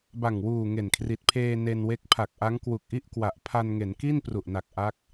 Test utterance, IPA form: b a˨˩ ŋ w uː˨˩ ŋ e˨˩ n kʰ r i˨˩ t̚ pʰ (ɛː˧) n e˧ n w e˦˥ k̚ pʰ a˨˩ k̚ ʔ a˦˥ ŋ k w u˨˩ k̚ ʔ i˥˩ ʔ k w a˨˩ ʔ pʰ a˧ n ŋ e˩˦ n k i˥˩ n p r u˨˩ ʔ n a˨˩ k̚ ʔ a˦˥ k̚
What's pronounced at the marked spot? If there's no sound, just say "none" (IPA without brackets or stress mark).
eː˧